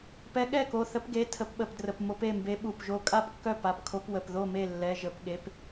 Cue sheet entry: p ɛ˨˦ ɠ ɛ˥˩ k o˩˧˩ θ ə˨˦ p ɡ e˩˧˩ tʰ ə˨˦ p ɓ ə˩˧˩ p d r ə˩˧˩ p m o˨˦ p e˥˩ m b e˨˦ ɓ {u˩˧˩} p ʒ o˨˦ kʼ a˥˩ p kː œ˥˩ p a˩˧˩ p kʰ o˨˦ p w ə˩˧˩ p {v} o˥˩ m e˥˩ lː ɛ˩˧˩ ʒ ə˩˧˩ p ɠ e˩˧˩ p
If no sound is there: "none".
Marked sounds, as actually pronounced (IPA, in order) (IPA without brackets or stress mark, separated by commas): u˩˧˩, ð